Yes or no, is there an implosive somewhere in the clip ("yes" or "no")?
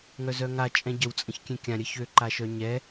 no